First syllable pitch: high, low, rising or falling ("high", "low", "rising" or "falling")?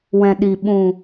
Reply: low